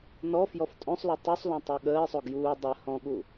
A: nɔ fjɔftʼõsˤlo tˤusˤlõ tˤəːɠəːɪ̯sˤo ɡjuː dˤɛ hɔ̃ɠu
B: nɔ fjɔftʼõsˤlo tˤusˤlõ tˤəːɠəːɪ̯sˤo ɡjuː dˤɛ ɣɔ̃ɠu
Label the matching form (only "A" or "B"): A